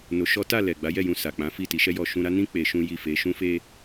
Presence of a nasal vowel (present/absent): present